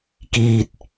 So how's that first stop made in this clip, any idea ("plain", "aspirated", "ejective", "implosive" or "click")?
plain